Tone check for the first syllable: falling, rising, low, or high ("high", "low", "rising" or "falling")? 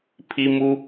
high